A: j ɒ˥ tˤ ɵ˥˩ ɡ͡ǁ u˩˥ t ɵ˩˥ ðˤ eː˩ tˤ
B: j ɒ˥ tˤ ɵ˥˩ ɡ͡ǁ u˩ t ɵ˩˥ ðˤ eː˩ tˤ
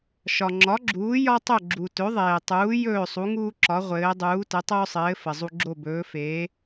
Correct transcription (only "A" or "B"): B